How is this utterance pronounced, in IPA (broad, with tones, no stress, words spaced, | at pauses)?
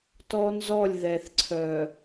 tɔ˦nzɔ˦˨lʲ ðɛ˨θǀʰœ˨